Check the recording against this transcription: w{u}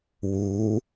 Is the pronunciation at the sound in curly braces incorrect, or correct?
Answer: correct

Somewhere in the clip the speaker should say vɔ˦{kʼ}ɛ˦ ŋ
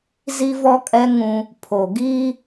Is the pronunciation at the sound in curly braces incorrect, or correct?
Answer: correct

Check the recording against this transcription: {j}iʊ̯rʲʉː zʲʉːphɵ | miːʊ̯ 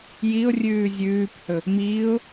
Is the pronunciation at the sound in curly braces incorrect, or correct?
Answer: correct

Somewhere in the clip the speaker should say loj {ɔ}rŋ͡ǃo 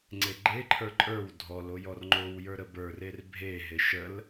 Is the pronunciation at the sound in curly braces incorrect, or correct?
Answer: correct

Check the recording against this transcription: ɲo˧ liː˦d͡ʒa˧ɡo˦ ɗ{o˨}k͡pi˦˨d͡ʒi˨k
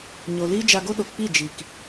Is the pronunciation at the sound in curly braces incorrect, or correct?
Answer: correct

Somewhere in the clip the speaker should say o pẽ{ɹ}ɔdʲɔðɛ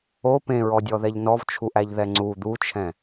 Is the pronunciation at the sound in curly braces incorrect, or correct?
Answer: correct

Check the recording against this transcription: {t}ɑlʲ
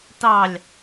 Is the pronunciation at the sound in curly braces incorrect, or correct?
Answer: correct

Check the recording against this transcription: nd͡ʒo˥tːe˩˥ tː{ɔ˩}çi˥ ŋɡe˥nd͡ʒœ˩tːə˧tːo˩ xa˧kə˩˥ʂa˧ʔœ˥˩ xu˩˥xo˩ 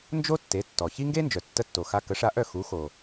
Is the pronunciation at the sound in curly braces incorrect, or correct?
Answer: correct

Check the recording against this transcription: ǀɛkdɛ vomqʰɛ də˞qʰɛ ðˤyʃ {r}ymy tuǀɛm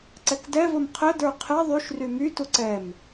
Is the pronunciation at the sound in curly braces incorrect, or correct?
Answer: correct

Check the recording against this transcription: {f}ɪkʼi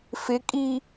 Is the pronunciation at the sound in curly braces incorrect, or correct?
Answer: correct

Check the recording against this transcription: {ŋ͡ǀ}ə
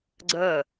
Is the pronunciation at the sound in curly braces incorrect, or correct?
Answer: incorrect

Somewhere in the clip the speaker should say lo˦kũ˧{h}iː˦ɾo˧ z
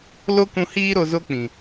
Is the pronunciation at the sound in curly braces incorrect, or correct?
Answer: correct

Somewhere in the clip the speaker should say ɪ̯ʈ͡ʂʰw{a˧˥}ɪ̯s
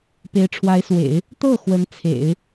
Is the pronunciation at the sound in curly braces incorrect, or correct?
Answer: correct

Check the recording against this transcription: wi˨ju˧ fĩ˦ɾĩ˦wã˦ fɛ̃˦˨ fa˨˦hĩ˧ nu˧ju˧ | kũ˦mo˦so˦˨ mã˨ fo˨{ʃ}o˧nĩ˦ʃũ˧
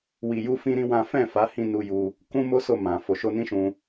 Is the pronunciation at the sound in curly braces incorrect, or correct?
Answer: correct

